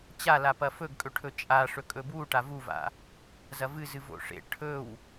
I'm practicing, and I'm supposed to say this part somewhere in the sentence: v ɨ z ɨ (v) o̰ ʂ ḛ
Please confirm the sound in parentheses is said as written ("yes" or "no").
yes